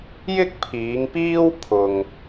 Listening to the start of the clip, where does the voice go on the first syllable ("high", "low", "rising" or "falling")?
high